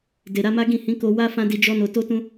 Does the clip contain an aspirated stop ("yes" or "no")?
no